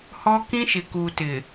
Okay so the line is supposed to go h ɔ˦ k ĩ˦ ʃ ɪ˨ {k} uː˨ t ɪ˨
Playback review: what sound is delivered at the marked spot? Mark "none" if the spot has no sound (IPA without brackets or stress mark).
k